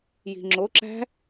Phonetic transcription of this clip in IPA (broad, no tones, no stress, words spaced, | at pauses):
ji̤ŋ͡ǁoǁæ̤